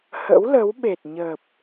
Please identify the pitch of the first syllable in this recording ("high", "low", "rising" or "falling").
rising